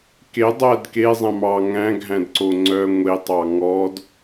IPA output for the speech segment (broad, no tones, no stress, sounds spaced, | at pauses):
k e dˤ æ d k e zˤ æ̃ m ɑ ŋ æ̃ ɡʱ æ̃ d ǀ o ŋ͡ǀ œ ŋʷ e tˤ ɑ ŋ ɔ d